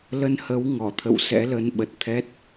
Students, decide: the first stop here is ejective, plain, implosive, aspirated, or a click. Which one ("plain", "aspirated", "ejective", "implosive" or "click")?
aspirated